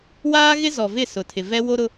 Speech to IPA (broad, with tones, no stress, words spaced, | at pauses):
waː˦ɣɪ˦ zɔ˨vɪ˦˨ sʊ˨tʰɪ˨vɛ˦ wo˦ɾʊ˦